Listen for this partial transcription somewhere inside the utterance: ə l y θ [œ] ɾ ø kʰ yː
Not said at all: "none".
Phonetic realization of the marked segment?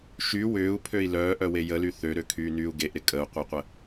ø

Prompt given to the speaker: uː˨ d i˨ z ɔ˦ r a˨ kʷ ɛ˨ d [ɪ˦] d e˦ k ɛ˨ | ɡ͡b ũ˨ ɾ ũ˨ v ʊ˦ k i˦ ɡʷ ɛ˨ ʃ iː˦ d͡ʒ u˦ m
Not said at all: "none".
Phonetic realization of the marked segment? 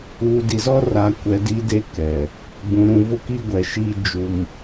i˦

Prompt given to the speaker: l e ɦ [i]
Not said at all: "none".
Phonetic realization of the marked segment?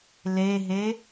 e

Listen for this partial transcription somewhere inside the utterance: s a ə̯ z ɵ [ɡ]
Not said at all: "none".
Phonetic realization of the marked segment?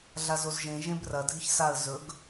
ɡ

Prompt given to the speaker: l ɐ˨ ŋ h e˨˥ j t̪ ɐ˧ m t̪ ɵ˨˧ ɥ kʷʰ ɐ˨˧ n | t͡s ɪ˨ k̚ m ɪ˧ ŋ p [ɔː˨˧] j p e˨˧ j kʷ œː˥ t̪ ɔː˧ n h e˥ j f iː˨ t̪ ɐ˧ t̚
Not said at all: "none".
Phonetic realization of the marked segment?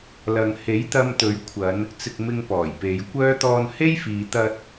ɔː˨˩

